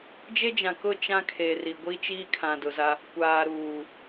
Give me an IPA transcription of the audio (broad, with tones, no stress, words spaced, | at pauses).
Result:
d͡ʒe˦d͡ʒã˨kʊ˦˨ t͡ʃã˦kʰe˨ri˨ɡʷi˦ t͡ʃiː˦kʰã˨dʊ˨za˦ | kʷaː˨ɾuː˨